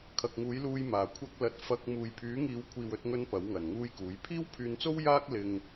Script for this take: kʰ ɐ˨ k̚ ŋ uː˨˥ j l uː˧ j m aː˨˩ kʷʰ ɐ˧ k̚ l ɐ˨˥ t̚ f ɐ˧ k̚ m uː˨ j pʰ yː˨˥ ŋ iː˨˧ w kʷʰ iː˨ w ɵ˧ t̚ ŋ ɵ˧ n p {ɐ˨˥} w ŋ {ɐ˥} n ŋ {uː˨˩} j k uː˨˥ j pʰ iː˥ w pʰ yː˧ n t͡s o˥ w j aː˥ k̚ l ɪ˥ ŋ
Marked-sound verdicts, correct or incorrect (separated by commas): correct, incorrect, incorrect